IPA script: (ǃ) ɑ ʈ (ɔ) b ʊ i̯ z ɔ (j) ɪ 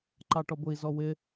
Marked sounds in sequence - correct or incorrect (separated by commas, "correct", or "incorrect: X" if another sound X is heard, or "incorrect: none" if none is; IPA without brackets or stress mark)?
correct, correct, incorrect: w